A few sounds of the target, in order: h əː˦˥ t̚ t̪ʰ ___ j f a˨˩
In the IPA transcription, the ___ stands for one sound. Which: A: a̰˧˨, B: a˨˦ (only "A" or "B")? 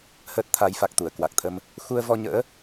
B